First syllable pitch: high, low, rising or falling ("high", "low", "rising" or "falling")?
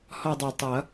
falling